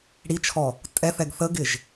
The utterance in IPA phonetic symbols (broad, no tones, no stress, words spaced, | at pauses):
ɽit͡ʃʰɔ | tʼɛθɛɡ θəɡɪʒ